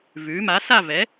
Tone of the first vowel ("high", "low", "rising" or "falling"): rising